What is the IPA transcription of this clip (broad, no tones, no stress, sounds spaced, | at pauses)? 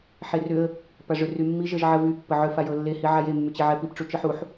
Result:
ħ e r ʏ ə̯ | p a ʐ ʏ r y mː i ʒ ə ʒ ʕ ə v y pː ə ʕ ʏ f a j ɤ lː e h i ʕ a j e mː y t͡ɕ e ʕ ɛ p i p ʈ͡ʂ u t͡ʃ ɯ ħ u ħ